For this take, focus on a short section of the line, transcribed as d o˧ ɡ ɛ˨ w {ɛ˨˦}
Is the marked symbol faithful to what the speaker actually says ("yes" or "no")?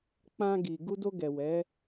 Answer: yes